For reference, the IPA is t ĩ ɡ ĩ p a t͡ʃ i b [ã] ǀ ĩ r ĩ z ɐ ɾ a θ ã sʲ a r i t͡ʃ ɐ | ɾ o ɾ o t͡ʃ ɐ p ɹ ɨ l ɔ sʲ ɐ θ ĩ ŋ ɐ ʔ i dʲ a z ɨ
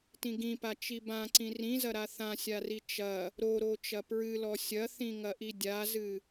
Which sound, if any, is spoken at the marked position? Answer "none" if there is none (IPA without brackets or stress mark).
ã